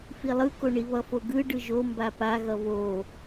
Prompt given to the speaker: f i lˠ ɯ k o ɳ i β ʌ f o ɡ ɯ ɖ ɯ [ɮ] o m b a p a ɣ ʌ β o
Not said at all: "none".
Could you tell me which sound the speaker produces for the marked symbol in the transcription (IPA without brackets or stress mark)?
ʒ